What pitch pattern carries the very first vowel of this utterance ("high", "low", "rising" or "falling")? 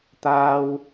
high